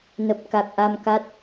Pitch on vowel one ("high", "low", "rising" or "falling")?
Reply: low